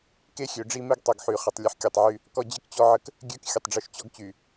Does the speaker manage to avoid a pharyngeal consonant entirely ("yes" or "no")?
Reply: no